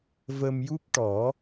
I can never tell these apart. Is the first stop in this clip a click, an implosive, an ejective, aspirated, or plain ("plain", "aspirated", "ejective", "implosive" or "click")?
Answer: plain